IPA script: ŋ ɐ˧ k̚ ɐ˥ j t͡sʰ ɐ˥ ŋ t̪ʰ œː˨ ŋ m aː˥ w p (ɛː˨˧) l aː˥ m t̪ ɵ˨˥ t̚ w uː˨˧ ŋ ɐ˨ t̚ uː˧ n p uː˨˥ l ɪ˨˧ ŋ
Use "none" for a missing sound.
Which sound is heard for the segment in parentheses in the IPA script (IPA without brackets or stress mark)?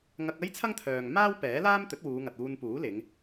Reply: ɛː˨˥